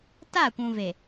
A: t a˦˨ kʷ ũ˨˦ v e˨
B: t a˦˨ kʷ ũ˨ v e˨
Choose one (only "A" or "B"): B